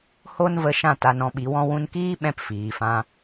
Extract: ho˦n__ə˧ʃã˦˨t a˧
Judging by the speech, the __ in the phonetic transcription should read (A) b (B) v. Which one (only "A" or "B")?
B